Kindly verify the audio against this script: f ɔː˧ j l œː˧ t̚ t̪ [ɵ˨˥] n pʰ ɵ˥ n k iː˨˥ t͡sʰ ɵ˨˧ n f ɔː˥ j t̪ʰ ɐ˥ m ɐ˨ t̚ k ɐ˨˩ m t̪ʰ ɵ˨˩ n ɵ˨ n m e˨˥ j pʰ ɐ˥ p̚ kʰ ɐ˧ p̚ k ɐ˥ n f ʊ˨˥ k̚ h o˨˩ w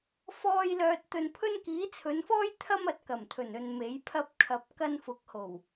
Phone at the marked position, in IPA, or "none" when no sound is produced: ɵ˧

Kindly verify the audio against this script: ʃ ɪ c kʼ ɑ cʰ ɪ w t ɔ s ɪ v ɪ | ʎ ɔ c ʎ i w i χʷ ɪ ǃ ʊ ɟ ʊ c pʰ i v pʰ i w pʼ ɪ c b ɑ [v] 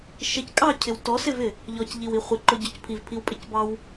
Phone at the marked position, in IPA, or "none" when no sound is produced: w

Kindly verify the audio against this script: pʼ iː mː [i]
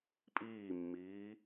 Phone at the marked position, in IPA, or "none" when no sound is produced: iː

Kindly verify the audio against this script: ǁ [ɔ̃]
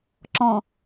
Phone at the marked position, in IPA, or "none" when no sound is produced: ɔ̃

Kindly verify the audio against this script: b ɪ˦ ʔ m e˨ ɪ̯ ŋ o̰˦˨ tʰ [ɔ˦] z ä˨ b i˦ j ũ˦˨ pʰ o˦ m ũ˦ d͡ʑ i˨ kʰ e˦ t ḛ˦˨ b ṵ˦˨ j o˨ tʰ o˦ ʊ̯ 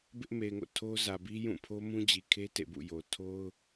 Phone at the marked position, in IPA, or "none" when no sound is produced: o˦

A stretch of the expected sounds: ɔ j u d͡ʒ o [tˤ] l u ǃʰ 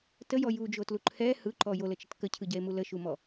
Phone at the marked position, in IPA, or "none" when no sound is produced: t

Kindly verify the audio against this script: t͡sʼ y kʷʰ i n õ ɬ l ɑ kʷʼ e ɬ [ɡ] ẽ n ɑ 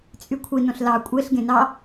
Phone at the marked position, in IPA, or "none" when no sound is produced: ɡ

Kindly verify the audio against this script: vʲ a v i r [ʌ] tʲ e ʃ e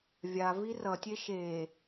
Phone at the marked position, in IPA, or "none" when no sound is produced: ʌ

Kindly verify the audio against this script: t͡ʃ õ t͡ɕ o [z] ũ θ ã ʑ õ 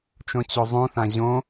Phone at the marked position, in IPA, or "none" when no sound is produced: zˤ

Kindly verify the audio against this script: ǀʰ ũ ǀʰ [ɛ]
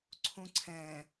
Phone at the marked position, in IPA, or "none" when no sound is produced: ɛ̃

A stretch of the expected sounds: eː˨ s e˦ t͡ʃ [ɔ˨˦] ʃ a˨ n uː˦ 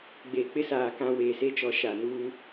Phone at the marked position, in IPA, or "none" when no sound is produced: ɔ˨˦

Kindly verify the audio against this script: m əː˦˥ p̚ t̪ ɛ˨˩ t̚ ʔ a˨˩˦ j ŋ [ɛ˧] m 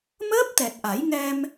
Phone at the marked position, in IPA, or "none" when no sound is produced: ɛ˧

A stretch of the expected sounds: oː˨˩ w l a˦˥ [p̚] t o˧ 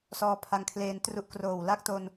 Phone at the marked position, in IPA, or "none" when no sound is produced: k̚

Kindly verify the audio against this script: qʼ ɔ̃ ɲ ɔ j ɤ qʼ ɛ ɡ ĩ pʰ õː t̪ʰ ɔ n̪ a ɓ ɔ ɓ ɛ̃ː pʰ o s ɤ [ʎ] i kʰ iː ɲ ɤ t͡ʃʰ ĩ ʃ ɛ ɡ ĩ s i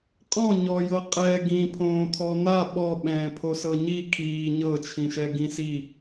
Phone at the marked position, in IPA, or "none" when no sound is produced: ɲ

